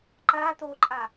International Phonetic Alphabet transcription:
ǃ a t̪ o ǃʼ a

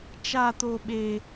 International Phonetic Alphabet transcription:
t͡ʃ a˧ t̪ o˧ ɓ e˧

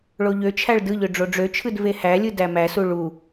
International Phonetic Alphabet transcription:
ɭ o ʎ ø t͡ʃʰ æ ɭ d ɯ ʎ ø ɖ͡ʐ o ɖ͡ʐ ø t͡ʃʰ ɯ d v e h æ lʲ ɯ d æ m æ s u ɭ u

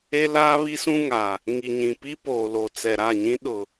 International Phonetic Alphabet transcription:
e˦ l aː˦ β i˦ s ũ˦ ŋ a˨ | ŋ i˨ ɲ ĩ˨ p i˦ p oː˨ l o˨ t͡s ɛ˨ ɾ a˦˨ ɲ ĩ˦ ɗ ʊ˨

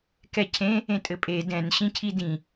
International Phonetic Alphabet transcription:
k ɛ cʰ ẽ | ẽ tʼ ɘ pʼ e d ɛ̃ n ɕ ĩ cʰ i d ĩ

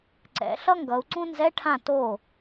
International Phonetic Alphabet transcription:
ǀ ɛ̰˩˧ ɬ ʌ˥ ŋ ɡ ʌ˩˧ u̯ ǀ ũ˥ n z ɛ˧˥˧ ʈʰ ã˥˩ t o˥˩

